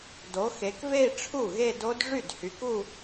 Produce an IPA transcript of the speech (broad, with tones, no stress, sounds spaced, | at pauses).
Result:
d o˨˦ x e˨˦ k v e˥˧ i̯ ʈ͡ʂʰ u˥˩ ɣ e˥˧ d o˦˥ d ʐ y˥˩ d h y˨˦ k u˥˧